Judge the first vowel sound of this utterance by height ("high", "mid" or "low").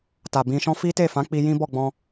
low